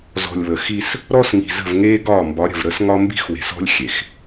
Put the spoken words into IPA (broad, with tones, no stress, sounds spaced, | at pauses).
z ɔ̤˨ lʲ β ə˨ x i˦ s | ɾ ɔ˦ s ŋ i̤˨ z ə̤˦˨ v ŋ eː˦ ɡ ɒː˦˨ m b ɒ˨˦ ɾʲ ə̤˨ v ɾ ə˦ s ŋ ɒ˦ m b i̤˦ x w e̤˨ s ɔ̤˦ lʲ xʲ e˨ x